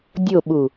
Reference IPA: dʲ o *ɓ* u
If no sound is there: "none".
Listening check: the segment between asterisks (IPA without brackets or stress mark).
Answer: ɓ